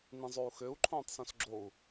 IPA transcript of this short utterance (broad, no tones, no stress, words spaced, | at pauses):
nĩzˤou̯xøu̯ ǃʰõːtˤsõsɡ͡ǁou̯